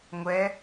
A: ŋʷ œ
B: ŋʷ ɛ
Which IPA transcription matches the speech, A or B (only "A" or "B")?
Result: B